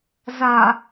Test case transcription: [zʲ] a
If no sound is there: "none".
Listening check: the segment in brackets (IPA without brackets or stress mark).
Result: z